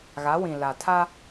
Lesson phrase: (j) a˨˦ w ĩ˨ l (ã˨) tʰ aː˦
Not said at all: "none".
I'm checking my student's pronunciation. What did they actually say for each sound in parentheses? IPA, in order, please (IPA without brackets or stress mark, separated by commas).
ɣ, a˨